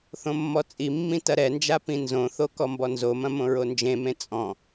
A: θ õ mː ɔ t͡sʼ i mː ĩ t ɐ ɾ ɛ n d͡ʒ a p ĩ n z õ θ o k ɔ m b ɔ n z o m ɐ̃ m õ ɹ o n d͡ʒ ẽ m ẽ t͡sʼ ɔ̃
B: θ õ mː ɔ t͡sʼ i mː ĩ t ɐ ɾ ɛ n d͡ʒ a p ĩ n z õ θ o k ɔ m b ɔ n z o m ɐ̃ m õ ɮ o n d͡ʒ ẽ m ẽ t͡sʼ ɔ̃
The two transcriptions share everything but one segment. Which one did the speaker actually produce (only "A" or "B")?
A